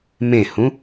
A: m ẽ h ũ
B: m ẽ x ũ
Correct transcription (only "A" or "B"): A